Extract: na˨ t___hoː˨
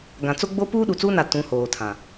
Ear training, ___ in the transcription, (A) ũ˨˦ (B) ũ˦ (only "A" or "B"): A